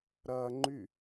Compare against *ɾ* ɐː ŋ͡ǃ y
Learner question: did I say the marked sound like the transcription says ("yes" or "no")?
yes